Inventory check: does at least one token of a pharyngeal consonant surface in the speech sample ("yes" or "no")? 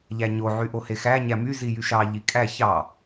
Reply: yes